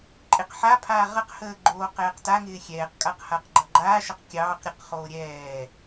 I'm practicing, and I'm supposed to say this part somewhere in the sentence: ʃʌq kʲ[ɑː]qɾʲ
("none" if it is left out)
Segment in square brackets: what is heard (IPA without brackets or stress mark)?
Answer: ɑː